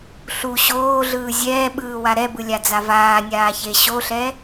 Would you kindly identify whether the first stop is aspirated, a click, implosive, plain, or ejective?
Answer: implosive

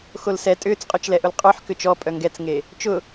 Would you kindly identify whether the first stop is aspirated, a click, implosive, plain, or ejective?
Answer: ejective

